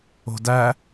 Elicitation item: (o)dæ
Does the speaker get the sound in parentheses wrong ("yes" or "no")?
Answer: yes